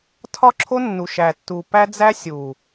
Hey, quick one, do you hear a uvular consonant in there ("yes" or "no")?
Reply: no